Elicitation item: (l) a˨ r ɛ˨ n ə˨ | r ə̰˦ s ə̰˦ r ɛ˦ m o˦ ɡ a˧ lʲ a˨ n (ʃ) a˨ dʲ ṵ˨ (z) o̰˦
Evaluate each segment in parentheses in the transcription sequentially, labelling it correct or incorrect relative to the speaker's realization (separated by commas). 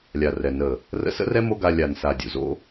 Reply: incorrect, incorrect, correct